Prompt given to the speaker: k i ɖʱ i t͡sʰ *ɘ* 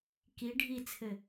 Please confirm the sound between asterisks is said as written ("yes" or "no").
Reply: yes